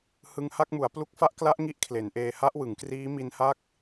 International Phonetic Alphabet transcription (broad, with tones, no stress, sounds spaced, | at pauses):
h ɯ˧ ŋ h a˥˩ k̚ m u˩˦ a̯ p l u˦˥ k̚ f a˦˥ ʔ k l a˦˥ ʔ ŋ i˥˩ ʔ kʰ l e˩˦ n ʔ eː˧ h a˦˥ ʔ w ɯ˩˦ ŋ k r iː˦˥ m i˦˥ n h a˥˩ k̚